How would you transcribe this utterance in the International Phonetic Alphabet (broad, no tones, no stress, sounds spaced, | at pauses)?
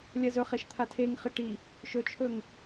lʲ ɐ z ɵ χ e ʃ t̪ʰ a tʰ e ŋ χ ɨ ʈ i | ʃ ɵ t͡ʃʰ ɵ ŋ